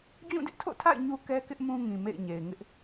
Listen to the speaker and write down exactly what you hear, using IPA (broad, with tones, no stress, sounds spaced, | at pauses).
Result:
d͡ʑ ũ˦˨ d ɪ˦ ʔ tʰ o̰˦˨ tʰ a̰˦˨ ɪ̯ ɲ u˦ k ɛ˦ k ɪ˦ ʔ m ũ˦ ŋ ĩ˨ m ḛ˦˨ ɪ̯ ɲ e˨ ɪ̯ ŋ ɪ˦ ʔ